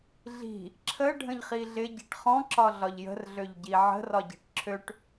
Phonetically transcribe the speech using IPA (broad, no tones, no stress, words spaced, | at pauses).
ɮi̤ | ǁʰə ɖʱə̃ʎχiɮɪ ɟi̤ʈχɔ̃ ǁɒɮɒʎjə̤r ɮøʎɟiʕə̤ rɒɟi̤ʈǁʰøʈ